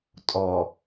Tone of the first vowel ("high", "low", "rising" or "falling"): low